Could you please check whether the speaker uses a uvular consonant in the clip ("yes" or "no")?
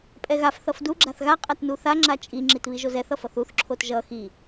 yes